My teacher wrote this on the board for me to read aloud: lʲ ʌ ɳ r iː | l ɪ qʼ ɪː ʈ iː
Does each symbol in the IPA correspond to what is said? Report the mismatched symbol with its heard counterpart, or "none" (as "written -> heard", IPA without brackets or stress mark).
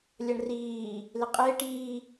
none